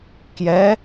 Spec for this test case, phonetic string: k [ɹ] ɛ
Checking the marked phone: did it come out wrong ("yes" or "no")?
yes